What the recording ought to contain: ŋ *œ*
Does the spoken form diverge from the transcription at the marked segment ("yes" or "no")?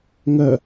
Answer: no